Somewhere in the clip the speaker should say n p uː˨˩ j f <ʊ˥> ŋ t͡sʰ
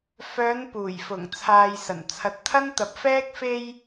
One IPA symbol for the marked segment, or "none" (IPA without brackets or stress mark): ʊ˨˩